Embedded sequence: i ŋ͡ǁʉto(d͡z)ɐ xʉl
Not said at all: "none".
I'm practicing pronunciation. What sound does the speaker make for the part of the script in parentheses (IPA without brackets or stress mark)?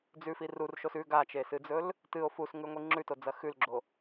d͡z